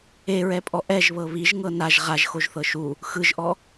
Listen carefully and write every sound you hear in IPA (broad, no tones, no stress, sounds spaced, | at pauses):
e ɹ ɛ pʼ ɔ ʔ ɛ ʒ β ɤ β i ʒ ŋ ɤ n a ʒ ʁ a ʒ x o ʒ θ ɤ ʃ u | x ɯ ʒ ʔ ɔ